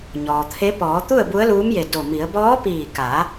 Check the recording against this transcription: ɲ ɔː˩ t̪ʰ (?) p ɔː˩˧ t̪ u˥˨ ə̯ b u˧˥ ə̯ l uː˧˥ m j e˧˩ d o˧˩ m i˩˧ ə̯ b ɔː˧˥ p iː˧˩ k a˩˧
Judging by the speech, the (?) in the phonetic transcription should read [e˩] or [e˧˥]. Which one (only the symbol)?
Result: e˧˥